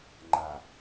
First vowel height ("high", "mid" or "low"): low